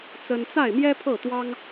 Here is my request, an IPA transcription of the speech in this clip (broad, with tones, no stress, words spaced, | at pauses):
t͡sə˥n t͡sa˥˩ɪ̯mjɛ˥pʰɤ˥˩t̪wɑ˥ŋ